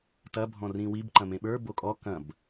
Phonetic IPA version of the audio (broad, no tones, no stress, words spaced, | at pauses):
tɐ bʱɔ̃rĩwib ǃɐ̃mẽɓə˞ bokʼɔ kɐ̃b